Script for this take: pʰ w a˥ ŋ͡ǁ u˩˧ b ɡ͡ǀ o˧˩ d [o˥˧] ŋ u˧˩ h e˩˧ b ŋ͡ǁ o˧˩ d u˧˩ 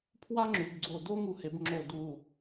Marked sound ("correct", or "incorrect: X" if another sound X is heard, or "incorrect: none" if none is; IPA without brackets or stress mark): correct